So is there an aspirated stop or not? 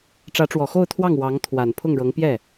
yes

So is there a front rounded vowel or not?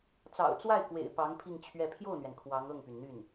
yes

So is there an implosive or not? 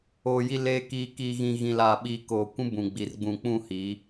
yes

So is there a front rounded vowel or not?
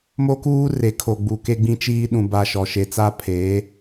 no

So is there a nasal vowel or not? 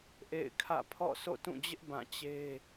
yes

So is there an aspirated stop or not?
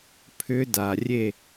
yes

